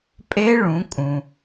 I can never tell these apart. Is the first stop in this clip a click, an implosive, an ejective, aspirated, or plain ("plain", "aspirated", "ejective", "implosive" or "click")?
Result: ejective